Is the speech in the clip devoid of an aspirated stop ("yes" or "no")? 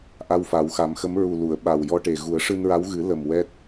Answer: yes